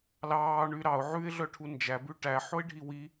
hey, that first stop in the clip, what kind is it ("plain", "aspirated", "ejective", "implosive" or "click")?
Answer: aspirated